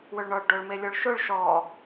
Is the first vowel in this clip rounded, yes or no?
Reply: yes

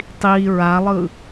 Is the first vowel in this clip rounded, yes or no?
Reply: no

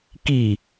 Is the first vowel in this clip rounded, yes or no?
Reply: no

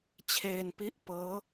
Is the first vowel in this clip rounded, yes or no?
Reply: no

